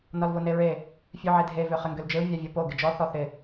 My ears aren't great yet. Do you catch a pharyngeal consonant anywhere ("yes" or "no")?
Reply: yes